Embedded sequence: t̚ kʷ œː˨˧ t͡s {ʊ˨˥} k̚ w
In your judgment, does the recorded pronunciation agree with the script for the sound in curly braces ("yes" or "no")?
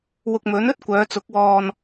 yes